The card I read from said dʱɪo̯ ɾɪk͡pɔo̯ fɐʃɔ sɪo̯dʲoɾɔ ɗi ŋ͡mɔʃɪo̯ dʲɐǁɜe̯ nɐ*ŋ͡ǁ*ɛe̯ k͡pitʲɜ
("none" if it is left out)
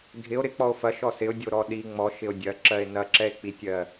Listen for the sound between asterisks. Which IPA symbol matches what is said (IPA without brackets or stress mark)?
ǁ